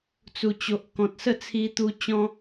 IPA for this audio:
t͡su˨˩t͡ɕo˨ʔkɔ̃˨t̚ sə˥˧t͡sʰi˧t̪u˧ t͡ɕɔ̃˧

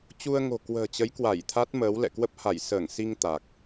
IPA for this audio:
t͡ɕu˧ə̯ŋo̤˨˩kwə̤ː˨˩t͡ɕə˨˦j kwa˧˩j t̪ʰa˦˥t̚məː˨˦w lɛ̰˧˨kwə˦˥p̚ha˧˩j səː˧˩ŋsi˧ŋ t̪a˨˩k̚

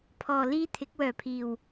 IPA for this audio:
pʰɔː˨ liː˥t̪ʰɪ˨˥k̚wœː˨˩pʰiː˨˩w

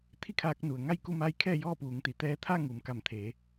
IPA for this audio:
t̪ʰi˥˨kʰaː˧k̚nu˩ə̯ ŋa˥˨jku˥˨maː˧˥jkʰɛː˥˨ jɔː˥˨puː˩˧ŋt̪i˩ t̪ɛː˧t̪ʰa˥˨ ŋuː˩˧mka˧˩mt̪ʰeː˩˧

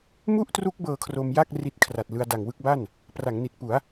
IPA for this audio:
mu˥˩ʔtru˦˥k̚ bɤː˧kʰro˧mja˥˩k̚ ri˦˥t̚kʰra˨˩t̚ lɯ˧a̯da˨˩ŋwɯ˥˩k̚ ba˥˩n | pra˩˦ŋni˨˩t̚pu˩˦a̯

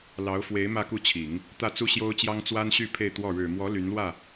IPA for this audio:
lɑ˧˥ʊ̯fwe˧˥ɪ̯ mä˥˧ku˥˩t͡ɕʰi˨˩˦ŋ | t̪ä˥˩t͡su˥ɕjo˥ʊ̯t͡ɕjɑ˥ŋ t͡swa˥nɕy˥˧ pʰe˥˧ɪ̯t̪wɔ˥˩ ɻɻ̩˨˩mwɔ˧˥ ly˧˥nlwä˥˩

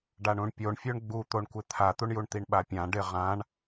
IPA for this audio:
ɖaɳũɳpʲoɳfʲoɳ ɡ͡but̪oɳkʷɪ t̪ʰat̪uɳjuɳt̪iɳ ɓapʲã ɖɪ ʁãɳ

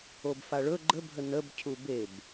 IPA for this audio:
obfaɭɵ ɡ͡ǃəbʱə nəbcʰu beb

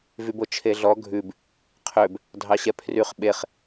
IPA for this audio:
vybot͡ʃʰeɮɔ ɡʱʉb | qʰøb | dʱɑɕɛpʰryχ ɓeχ

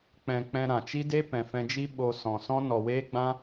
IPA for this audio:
k͡pɛ̃˨ k͡pɛ̃˧ɾã˨t͡ʃi˦de˦ pɛ̃˨fɛ̃˧d͡ʒi˦ ɓo˧ sɔ̃˨sɔ̃˦ nɔ˨weː˦ɡ͡bã˦

